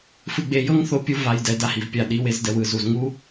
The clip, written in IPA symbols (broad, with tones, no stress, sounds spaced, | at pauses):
f ɯ˧ ɡ͡b e˧ j ɤ˦ ŋ θ o˦ pʲ u˦ v a˧ j d ɛ˧ d a˦ h i˨ v pʲ a˦˨ ɗ i˧ w e˧ z d ɛ˦ w ɯ˧ z u˨ z ŋ u˦